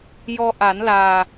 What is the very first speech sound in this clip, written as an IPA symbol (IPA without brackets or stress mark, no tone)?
j